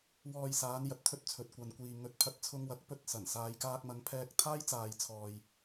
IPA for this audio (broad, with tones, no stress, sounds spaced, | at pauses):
w ɔː˧ j s aː˨˧ n j ɐ˨ t̚ t̪ʰ ɵ˥ t̚ t͡sʰ ɵ˨ t̚ kʷ ɐ˨ n kʷ iː˨ ŋ ɵ˨ t̚ pʰ ɐ˧ t̚ t͡sʰ ʊ˧ ŋ w ɐ˨˥ k̚ p ɵ˧ t̚ s ɐ˨˩ n s aː˧ j k aː˧ k̚ m ɐ˨˧ ŋ pʰ ɛː˧ k̚ t̪ʰ aː˥ j t͡s aː˨ j t͡sʰ ɔː˨ j